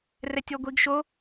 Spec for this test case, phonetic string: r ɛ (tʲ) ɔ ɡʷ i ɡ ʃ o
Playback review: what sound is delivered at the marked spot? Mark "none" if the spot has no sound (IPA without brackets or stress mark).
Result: tʲ